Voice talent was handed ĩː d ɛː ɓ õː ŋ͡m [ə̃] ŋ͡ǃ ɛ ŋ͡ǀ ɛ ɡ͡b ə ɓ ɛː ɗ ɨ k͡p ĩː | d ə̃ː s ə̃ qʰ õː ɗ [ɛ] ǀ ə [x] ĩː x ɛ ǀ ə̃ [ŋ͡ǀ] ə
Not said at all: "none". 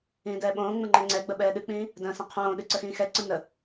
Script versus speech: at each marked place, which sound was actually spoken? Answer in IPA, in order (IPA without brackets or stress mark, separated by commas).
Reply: ə̃, ɨ, x, n